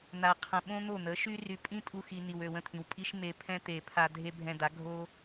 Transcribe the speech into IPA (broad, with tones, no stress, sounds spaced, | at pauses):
n̪ a˨ qʰ ə̃˨ ɓ õ˦ n̪ o˦˨ n̪ ə˨˦ ʃ y˦ r y˨ pʼ ĩ˦ tʼ u˧ x i˨ n i˨ w ø˨ w ə̃˦˨ t̪ʰ ĩ˨ w pʼ i˦ ʃ m e˧ pʰ ɛ̃˦ t̪ e˨ pʰ a˧ dʱ e˦ bʱ ɛ̃˧ d̪ a˨˦ ɡʱ o˦